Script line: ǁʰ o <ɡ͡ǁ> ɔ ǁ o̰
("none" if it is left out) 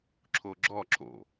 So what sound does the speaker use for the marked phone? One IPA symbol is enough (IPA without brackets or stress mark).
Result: ɡ͡ǁ